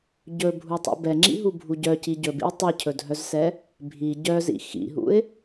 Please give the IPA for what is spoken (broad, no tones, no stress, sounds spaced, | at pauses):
ɟ ɵ bʱ u tˤ ṵ b ɛ ŋ͡ǁ ḭ ɦ u bʱ u ɟ œ c i ɟ ɵ b ḭ w tˤ ɛ cʰ ɵ dʱ œ z s ɛ | bʱ i ɟ œ z ḭ x ḭ ɦ ṵ ɪ̯